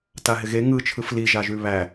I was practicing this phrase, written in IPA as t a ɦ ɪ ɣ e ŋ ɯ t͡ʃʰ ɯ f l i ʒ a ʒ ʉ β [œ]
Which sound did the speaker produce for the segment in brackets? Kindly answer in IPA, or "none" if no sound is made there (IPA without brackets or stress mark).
æ